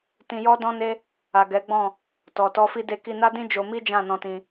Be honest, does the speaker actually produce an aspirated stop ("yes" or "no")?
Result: no